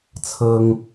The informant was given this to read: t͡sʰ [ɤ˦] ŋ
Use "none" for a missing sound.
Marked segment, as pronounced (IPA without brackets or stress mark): ɤ˦